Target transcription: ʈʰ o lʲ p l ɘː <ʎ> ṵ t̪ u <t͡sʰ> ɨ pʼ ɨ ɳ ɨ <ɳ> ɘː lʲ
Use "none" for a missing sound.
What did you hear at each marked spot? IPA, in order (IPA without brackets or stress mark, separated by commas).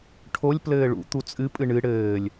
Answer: ɭ, t͡sʼ, ɽ